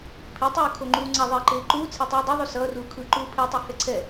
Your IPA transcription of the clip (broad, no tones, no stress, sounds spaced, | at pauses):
pʰ i tˤ ɯː kʰ o ŋ͡ǃ uː ŋ͡ǀ a ðˤ eː ǃ eː ǃ uː t͡sʰ ɛ tˤ uː dˤ ʌ ðˤ u s ʌː r uː kʰ ɯ ǃ uː pʰ e tˤ i h ɛ ǀʰ ɛ